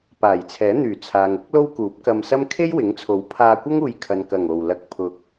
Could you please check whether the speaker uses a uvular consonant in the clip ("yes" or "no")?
no